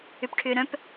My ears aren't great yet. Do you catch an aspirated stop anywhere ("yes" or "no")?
yes